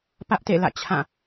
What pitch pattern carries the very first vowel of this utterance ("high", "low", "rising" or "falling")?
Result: high